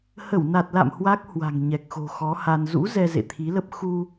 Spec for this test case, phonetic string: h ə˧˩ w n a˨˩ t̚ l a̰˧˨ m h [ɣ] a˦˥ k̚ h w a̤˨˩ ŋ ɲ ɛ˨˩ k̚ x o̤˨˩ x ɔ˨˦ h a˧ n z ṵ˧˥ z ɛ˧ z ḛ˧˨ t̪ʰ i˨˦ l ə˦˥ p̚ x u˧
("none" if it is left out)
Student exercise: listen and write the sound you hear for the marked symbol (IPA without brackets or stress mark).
w